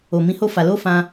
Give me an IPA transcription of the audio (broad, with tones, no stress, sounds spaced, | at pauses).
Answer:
o˨ m ĩ˧ h o˦ f a˧ l o˦ f ã˧